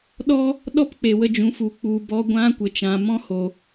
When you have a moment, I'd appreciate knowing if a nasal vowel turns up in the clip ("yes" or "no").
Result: yes